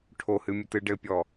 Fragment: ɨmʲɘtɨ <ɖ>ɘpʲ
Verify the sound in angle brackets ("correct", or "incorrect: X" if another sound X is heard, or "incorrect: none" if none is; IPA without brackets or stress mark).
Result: correct